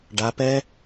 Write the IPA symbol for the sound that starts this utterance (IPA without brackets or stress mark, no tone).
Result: ɖ